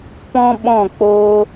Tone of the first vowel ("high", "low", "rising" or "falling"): high